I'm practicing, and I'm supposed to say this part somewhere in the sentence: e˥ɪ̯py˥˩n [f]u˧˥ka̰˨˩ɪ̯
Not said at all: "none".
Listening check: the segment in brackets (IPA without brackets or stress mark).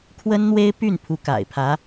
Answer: pʰ